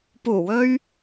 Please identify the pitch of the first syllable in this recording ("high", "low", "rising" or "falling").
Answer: low